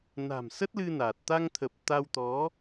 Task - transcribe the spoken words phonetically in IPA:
na̤˨˩msə˦˥t̚lɨ˧ na˨˩t̚ t̪a˧ŋt̪ʰə˨˩p̚ t̪a˧wt̪ɔ˨˦

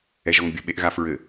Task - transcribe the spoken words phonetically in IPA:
ɛʒɔŋbʲɘ ɓeʔɣafɹɘ

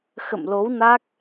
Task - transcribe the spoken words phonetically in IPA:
xə̰˧˨mlo˨˦wna˦˥k̚

